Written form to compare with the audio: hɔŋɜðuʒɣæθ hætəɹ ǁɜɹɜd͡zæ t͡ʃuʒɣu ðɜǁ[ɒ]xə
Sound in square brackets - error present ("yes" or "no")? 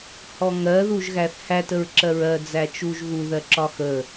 no